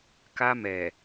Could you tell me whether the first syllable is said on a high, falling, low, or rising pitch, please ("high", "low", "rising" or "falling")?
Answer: high